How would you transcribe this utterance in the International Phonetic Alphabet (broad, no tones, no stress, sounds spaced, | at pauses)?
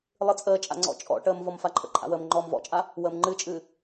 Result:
lˠ ɨ t͡sʼ əː t͡ʃʼ a̰ ŋ͡ǀ ɔ̰ t͡ʃʼ ɔ̰ ʈ əː m v ɔ m f a ǃʰ ə̰ ǃʰ a̰ w əː m ŋ͡ǃ ɔː m v ɔ̰ t͡ʃʼ a | w əː m ŋ͡ǃ ɨː t͡ʃʼ ɨː